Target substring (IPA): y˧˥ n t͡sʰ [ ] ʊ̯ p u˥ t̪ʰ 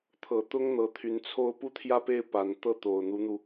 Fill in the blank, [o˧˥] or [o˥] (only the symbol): o˥